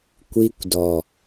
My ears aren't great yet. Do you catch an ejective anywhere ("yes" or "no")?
no